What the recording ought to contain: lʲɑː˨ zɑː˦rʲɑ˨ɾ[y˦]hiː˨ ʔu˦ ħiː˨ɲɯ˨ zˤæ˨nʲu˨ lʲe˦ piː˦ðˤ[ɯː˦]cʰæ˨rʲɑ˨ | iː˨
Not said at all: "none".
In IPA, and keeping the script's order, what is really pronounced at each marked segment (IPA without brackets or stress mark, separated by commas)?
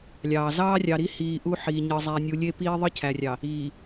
i˦, ɯ˦